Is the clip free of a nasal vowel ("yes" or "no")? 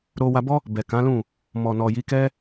no